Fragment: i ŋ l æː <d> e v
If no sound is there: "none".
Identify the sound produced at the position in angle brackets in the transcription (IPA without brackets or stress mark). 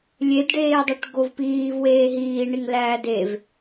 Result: d